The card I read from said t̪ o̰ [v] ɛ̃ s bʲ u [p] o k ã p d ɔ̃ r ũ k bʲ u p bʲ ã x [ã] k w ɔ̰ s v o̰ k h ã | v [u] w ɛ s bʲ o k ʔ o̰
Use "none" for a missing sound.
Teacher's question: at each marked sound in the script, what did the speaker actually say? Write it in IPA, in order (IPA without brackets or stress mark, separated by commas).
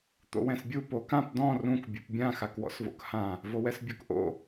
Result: w, p, a, o